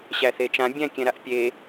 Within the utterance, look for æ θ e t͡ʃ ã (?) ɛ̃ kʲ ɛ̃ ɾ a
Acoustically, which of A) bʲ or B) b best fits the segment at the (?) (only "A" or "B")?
A